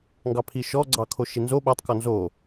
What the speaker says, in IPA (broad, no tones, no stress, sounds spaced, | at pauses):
ŋ ɡ ɑ pʰ i ʃ ɔ ɡ͡ǀ ɑ kʰ o ʃ i n z o ɓ a tˤ k ɔ n z o